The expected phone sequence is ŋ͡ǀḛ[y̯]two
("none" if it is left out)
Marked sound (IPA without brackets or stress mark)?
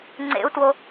u̯